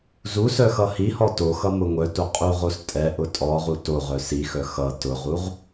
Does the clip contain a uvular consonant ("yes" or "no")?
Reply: yes